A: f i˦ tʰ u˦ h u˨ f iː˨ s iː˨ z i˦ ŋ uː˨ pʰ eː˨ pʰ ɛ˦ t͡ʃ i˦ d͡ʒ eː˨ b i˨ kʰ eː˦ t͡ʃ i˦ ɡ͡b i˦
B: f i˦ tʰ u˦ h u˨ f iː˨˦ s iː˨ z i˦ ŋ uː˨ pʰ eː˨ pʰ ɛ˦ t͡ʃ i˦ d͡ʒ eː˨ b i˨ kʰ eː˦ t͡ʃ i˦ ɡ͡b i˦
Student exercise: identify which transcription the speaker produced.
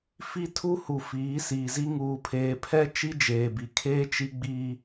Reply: B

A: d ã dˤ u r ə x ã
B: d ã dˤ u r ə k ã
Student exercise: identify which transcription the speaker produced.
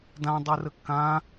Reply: B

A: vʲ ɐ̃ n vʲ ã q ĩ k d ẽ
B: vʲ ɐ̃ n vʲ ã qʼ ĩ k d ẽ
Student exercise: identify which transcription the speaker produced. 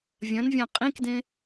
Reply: B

